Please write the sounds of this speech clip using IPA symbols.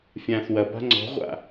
fʲãːθwɐba̤ ŋ͡ǀɔ̤ʁʷa̰

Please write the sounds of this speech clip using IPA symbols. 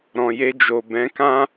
ɾɔ̃˨je˧d͡ʒo˨ bɛ̃˨˦kã˦

